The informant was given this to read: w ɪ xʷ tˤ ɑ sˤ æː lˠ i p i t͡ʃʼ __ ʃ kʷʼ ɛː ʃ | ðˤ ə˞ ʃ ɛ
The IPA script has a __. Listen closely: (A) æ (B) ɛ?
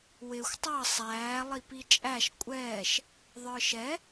A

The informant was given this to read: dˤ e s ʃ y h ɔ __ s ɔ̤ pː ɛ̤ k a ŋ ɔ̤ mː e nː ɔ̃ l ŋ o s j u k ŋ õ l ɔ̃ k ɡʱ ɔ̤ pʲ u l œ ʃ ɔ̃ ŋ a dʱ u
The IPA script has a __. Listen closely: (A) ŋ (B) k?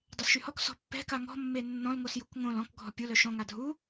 B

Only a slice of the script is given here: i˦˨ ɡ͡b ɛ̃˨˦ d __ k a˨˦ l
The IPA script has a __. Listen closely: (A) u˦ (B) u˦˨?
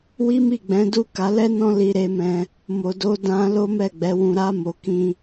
B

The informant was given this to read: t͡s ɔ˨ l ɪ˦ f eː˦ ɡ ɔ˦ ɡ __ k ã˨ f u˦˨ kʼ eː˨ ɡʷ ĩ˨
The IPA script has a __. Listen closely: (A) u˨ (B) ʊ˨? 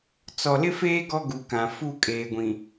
A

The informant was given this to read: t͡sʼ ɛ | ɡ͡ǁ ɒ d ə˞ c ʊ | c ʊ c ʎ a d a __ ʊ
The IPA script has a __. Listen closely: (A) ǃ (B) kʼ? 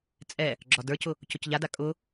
B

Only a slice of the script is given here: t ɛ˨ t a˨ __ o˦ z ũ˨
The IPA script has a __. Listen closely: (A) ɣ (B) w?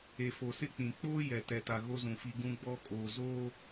A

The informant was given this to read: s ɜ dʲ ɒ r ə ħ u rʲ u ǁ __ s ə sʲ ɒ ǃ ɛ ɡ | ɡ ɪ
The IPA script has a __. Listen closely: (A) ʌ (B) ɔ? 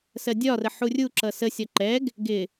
A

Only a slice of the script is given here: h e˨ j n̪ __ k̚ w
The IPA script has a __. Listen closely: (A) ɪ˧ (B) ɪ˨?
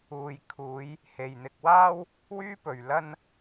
A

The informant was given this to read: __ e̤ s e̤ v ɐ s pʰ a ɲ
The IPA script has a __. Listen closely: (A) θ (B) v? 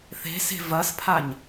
A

